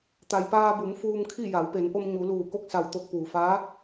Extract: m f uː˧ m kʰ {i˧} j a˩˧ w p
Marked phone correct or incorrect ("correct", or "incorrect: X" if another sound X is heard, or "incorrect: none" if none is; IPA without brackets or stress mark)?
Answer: incorrect: i˥˨